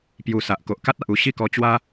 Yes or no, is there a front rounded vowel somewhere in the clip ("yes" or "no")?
no